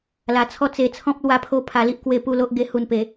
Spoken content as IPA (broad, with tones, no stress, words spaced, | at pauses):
la˧t͡sʰɔ˦t͡se˧t͡sʰɔ̃˦p̚ lwa˦pʰo˥˧ pʰa˧li˦ʔkwe˧ pu˥˧lo˦ʔ ɡe˧hu˨˩npe˨˩